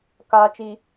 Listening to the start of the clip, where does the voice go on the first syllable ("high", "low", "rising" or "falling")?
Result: low